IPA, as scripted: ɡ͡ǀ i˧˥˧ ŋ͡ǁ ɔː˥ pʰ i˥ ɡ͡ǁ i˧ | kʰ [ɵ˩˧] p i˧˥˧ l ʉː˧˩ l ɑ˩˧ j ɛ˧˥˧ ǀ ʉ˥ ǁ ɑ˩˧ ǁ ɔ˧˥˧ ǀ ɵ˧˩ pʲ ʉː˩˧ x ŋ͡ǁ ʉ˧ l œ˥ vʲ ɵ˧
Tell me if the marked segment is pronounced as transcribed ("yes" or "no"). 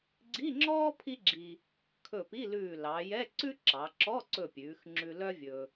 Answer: no